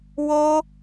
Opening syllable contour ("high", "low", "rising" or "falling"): high